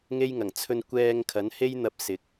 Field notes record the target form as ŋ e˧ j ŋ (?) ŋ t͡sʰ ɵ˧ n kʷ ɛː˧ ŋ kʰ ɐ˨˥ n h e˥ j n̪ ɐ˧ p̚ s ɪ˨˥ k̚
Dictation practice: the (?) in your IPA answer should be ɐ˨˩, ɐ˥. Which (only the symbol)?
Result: ɐ˨˩